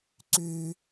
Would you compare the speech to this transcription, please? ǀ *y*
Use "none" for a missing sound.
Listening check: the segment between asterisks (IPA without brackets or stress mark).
y